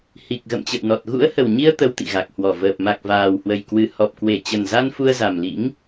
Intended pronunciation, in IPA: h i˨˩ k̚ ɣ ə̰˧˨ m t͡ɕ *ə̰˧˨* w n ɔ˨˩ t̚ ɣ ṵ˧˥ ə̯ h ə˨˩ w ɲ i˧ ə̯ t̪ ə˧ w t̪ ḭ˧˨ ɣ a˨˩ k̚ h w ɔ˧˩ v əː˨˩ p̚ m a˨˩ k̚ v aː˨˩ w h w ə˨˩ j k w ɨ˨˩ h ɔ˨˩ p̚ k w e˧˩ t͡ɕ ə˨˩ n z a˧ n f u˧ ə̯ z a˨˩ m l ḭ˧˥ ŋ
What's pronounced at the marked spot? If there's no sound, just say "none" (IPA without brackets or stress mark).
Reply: ə̰˧˨